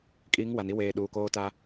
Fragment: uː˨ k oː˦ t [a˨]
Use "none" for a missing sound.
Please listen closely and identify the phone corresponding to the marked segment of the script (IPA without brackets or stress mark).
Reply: a˦